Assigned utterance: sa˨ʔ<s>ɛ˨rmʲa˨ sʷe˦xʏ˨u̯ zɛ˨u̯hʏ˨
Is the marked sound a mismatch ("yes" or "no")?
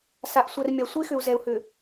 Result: yes